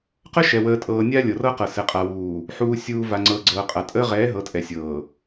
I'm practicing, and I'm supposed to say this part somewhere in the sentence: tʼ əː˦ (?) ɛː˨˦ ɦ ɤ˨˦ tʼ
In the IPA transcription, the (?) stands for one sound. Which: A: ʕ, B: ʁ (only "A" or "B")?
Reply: B